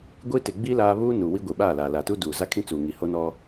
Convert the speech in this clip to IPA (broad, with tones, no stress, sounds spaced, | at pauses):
ɡʷ i˦ t ɪ˨ ɡ͡b i˦ l aː˦ β uː˦ n u˨ w i˦ ɡʷ i˨ ɓ aː˦˨ l aː˨ l a˨ t u˦ d uː˨ z a˦ kʰ ĩ˦ t͡s uː˨ ŋ i˨ h o˦ n ɔ˦